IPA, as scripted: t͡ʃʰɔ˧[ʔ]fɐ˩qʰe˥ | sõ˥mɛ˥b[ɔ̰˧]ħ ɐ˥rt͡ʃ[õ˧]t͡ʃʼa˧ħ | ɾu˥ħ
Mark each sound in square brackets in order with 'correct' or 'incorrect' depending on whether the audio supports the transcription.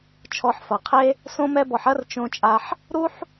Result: incorrect: ħ, incorrect: ɔ˧, correct

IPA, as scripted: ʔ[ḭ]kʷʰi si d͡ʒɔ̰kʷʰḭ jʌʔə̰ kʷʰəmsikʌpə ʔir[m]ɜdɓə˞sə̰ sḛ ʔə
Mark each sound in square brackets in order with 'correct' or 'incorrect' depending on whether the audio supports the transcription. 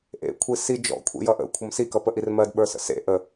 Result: incorrect: ḛ, correct

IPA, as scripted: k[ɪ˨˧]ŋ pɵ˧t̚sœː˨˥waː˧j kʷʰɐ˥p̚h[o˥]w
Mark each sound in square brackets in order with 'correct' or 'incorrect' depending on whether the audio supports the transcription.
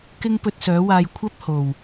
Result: incorrect: ɪ˥, incorrect: o˨˩

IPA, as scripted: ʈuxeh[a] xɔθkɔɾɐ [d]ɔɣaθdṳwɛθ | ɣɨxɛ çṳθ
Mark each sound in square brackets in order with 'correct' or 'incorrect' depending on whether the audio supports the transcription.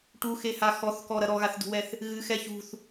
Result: correct, incorrect: ɾ

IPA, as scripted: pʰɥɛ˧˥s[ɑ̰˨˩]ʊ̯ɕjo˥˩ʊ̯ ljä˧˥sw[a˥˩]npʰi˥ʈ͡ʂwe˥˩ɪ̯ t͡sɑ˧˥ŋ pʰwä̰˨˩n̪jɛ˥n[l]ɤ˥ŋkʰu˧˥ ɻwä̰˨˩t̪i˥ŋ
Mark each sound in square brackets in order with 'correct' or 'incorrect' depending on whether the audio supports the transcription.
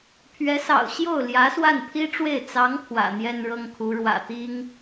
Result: correct, correct, incorrect: ɻ

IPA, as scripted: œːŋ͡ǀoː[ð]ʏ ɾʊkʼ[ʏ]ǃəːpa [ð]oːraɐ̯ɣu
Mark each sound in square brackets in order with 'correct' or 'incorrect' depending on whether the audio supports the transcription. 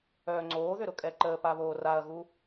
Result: correct, incorrect: ɛ, incorrect: β

